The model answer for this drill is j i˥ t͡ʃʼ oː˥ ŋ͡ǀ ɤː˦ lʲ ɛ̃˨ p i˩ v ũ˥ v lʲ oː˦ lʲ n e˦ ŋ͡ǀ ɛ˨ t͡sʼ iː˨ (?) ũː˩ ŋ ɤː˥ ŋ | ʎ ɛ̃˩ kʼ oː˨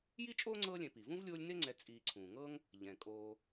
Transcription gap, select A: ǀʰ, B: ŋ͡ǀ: A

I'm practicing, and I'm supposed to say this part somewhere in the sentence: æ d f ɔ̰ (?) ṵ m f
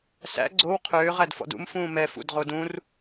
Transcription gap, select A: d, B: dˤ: A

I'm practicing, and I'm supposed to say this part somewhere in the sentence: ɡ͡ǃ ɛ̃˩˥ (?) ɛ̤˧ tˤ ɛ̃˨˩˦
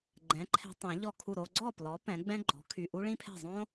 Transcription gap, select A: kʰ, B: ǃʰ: B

